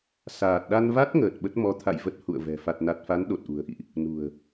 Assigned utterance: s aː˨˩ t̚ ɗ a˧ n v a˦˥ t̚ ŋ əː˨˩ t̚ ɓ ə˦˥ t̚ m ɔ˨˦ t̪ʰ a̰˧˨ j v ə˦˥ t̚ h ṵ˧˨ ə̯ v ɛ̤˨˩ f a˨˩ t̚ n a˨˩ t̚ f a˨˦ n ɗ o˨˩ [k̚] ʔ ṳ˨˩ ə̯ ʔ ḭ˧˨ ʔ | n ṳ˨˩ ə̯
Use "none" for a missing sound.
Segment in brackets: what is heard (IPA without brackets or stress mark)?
t̚